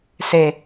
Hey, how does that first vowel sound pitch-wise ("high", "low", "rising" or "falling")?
low